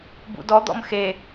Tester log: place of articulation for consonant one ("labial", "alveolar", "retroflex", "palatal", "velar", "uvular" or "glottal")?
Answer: labial